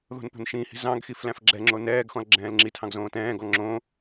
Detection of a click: present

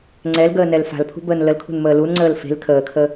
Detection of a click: present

